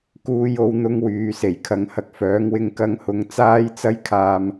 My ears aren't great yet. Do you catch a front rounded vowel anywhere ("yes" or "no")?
yes